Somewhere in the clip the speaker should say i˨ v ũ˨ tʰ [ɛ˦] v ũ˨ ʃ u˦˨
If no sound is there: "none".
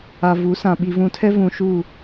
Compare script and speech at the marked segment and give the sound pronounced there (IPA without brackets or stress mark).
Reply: ɛ˦